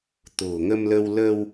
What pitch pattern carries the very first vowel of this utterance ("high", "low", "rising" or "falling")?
low